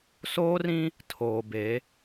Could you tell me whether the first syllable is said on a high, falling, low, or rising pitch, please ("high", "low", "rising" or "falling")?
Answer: high